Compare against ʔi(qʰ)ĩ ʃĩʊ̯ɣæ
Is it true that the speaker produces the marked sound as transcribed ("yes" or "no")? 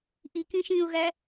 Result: no